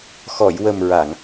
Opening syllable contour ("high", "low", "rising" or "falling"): low